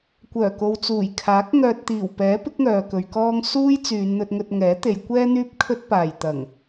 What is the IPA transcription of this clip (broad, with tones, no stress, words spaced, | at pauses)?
kʷœː˨˩ko˨wt͡suː˨˩jkʰaː˨˥k̚ ŋœː˨t̚t̪iː˨˩wpɛː˨˥pɪ˨˥k̚ ŋœː˨kɵ˨˧ɥkɔː˥ŋ suː˥j t͡syː˨˧nn̪ɵ˧t̚ŋɵ˧t̚ ŋɛː˨˥t̪e˨˧j kʷɛː˥n̪yː˥p̚ kʰɵ˥t̚paː˨j t̪ɐ˨˩ŋ